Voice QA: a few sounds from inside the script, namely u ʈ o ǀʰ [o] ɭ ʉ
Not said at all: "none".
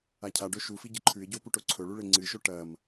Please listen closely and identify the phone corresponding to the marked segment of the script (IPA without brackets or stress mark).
ɵ